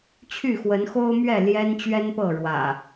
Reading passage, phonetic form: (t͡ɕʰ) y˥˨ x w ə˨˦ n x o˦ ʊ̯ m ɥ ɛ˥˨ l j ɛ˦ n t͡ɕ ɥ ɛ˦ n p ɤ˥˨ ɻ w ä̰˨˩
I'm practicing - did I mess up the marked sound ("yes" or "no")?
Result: no